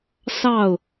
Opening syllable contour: falling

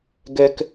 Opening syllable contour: low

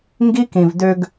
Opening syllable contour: high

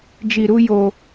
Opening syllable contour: low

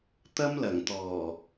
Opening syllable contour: high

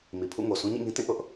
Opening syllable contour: low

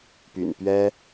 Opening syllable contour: low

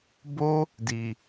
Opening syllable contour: high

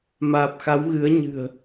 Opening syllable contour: low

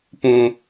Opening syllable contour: high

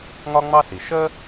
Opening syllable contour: high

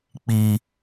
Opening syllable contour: high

